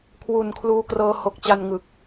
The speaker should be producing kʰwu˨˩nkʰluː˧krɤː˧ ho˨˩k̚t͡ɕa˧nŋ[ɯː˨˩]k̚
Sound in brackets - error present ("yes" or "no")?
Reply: yes